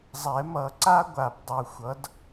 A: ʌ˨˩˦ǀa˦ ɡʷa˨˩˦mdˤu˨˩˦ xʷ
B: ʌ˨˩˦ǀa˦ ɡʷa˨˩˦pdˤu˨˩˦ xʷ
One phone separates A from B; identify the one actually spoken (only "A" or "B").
B